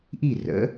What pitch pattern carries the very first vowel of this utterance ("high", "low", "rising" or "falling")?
falling